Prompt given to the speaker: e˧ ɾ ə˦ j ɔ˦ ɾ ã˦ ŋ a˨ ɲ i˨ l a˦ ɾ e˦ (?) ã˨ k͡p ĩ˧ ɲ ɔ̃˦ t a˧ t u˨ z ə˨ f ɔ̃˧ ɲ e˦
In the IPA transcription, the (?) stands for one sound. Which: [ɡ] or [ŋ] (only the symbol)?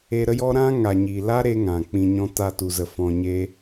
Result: ŋ